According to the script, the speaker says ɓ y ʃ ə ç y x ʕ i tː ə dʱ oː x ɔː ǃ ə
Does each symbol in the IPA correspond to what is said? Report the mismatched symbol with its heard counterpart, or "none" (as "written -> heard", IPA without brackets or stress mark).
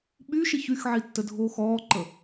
none